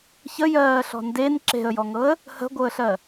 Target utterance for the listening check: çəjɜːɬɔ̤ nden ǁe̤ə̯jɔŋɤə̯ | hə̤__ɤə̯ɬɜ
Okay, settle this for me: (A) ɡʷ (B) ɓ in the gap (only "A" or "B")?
A